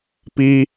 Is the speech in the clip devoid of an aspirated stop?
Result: yes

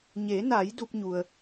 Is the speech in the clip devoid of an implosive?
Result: yes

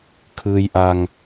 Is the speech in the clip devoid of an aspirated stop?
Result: no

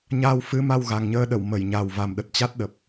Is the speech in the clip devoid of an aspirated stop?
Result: yes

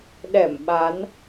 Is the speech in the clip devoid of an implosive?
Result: no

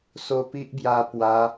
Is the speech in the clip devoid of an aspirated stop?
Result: yes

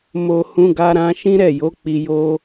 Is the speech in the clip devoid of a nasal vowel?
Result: no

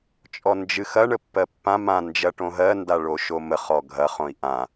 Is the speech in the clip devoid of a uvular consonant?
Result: no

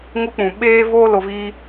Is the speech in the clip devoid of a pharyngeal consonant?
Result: yes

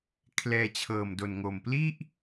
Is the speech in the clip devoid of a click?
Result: yes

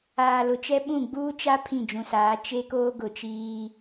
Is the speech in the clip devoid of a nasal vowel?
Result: no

